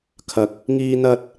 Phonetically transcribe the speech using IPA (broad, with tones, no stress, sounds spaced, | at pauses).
kʰ ɐ˧ k̚ | ŋ iː˥ n̪ ɐ˥ t̚